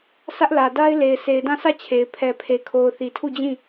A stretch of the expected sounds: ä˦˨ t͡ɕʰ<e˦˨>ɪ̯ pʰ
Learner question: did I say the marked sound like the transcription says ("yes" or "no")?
no